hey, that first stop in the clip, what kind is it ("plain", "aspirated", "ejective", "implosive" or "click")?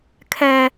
aspirated